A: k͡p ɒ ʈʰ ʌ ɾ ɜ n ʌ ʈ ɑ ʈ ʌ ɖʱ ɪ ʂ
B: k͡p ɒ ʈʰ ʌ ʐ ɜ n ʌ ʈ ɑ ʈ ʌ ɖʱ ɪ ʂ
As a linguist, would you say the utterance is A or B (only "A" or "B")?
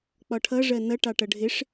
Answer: B